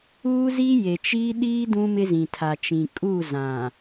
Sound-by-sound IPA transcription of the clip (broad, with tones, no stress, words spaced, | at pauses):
uː˦ziː˦ je˨t͡ʃiː˦ɗiː˦ dũ˦mɪ˦zĩ˨tʰa˨ t͡ʃĩ˨kʼu˦˨ zã˨